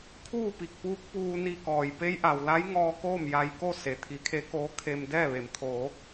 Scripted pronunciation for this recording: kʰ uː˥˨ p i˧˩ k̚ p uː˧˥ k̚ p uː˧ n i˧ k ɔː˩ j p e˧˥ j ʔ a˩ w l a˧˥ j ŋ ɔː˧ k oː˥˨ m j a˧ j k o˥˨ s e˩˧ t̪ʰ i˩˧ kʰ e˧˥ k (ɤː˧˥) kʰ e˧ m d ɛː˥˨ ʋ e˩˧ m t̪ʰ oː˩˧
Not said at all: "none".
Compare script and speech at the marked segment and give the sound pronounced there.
oː˧˥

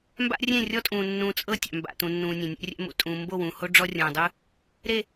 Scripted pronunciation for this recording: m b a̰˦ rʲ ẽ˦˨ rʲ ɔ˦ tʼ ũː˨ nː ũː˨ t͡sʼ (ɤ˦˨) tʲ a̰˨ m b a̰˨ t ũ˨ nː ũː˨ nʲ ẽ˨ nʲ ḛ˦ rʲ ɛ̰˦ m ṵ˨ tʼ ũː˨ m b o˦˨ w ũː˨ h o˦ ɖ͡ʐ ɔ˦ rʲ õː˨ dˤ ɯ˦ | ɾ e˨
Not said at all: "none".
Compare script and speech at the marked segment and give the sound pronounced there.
ɤ˦˨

